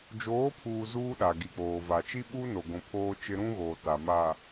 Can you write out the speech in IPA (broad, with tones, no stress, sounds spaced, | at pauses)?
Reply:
d͡ʒ oː˨˦ pʰ uː˨ z uː˦ ɗ a˨ ɡ i˨ k͡p oː˨ v a˨ t͡ʃ i˦ ɓ uː˦ n o˨ ɡʷ ũ˨ pʰ oː˦ t͡ʃ ɪ˦ ɾ ũ˦ ɣ oː˨ t a˨ m a˨